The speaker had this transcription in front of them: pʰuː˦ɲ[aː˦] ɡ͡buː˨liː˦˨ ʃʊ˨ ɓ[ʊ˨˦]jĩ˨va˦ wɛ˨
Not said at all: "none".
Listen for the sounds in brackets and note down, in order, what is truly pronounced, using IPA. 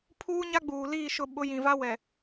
a˦, ʊ˨˦

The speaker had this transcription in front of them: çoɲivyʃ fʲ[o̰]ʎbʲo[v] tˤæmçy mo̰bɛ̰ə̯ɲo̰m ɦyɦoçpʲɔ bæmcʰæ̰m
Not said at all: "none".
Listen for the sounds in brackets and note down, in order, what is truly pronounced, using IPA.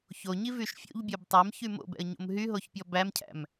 o̰, b

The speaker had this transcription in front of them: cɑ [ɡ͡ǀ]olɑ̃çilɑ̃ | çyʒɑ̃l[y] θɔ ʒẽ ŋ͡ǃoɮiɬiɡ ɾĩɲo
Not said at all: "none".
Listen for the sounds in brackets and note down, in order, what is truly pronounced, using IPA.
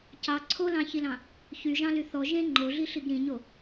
ǀʰ, y

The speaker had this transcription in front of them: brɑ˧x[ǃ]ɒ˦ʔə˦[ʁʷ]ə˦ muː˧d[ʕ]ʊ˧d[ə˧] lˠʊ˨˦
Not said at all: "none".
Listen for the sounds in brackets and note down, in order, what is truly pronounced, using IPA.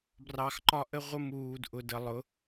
ǃ, ʁʷ, ʔ, ə˧

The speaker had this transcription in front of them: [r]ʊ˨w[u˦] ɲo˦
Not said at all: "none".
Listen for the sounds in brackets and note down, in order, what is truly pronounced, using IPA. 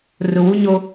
r, u˦

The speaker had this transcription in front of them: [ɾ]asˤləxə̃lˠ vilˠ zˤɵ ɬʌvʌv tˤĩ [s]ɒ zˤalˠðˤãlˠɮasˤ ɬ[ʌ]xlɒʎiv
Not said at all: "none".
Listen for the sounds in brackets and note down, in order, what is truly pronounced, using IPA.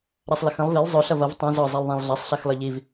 ɾ, z, a

